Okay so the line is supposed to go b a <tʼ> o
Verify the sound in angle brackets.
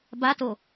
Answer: incorrect: t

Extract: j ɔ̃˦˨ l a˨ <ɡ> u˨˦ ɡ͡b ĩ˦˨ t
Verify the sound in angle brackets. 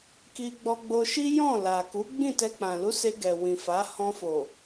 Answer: incorrect: k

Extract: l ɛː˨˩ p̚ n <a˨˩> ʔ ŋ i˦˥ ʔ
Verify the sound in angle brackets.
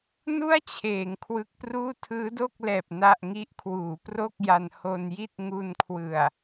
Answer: incorrect: a˥˩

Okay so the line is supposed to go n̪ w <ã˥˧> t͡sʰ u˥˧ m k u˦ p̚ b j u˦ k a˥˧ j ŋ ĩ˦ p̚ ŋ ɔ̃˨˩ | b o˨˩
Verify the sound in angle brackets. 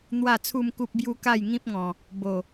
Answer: incorrect: a˥˧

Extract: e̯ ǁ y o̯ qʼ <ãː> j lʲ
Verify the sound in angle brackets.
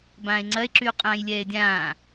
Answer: correct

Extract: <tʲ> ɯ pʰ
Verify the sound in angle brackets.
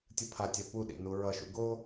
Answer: correct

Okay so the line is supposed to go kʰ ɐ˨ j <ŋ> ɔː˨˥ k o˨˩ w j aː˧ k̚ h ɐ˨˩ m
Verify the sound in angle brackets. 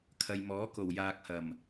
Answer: incorrect: m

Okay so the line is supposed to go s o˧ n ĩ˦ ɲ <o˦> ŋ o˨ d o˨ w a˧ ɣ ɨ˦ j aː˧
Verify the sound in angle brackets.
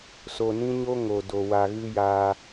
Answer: correct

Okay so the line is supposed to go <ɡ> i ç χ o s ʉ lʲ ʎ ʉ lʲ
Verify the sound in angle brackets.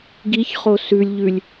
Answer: correct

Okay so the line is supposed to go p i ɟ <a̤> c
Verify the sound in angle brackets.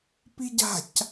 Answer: correct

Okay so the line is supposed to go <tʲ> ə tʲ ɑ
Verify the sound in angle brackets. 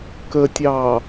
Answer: incorrect: k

